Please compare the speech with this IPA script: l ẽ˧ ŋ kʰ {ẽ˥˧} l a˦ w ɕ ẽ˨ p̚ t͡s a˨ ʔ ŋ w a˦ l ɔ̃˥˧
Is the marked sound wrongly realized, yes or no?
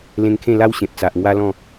no